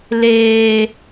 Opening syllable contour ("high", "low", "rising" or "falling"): high